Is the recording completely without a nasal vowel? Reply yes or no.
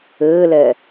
yes